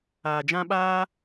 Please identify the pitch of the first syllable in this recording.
low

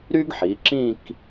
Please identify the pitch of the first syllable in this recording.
high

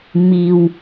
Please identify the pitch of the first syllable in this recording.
low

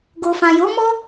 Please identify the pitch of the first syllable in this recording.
low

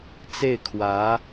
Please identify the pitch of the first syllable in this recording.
falling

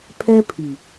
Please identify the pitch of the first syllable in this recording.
high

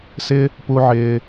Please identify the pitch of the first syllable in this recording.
high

